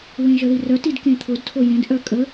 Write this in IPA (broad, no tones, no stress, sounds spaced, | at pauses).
w ẽ ʒ ə ð i r œ t i d k ẽ t̪ʰ ʊ d tʰ o j ẽ d ʔ œ kʼ ə